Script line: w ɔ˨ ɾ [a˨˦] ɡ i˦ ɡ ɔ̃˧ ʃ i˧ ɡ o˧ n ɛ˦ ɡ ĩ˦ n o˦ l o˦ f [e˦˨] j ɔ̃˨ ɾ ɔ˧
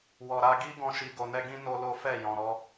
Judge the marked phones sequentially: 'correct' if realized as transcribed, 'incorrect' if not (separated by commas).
incorrect, incorrect